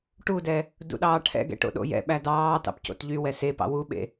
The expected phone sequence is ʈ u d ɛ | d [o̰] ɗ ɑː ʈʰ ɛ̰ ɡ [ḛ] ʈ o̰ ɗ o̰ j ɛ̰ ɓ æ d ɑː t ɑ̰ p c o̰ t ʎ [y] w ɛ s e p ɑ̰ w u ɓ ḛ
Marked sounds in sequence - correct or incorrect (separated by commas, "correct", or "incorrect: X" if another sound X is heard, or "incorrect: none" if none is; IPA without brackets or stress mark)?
incorrect: ṵ, incorrect: ɛ̰, correct